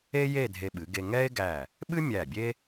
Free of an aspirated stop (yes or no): yes